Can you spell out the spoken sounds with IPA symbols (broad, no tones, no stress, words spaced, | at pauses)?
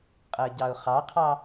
qʼɜɟɑʊ̯χɑqʰɑ